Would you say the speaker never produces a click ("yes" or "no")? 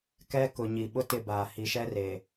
yes